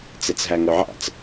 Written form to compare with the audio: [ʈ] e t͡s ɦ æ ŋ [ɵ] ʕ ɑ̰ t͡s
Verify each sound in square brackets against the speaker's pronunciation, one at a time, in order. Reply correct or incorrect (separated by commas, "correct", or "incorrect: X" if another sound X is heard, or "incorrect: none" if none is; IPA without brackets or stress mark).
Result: incorrect: t͡s, correct